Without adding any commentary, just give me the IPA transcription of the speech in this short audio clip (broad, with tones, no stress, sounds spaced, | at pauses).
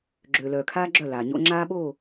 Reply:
ɡ͡ǁ øː˨ l œː˨ kʰ aː˦ ɡ͡ǁ œ˦˨ l aː˨ ɲ o̰˦ ŋ͡ǁ aː˦ ɓ oː˦˨